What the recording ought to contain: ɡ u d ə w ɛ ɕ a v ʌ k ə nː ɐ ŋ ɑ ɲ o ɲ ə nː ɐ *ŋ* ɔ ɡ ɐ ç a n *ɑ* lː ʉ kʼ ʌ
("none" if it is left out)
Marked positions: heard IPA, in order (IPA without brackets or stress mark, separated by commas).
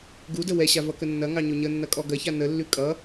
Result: kʼ, ə